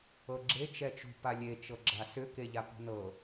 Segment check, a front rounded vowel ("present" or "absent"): present